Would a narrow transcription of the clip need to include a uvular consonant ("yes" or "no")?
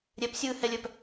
no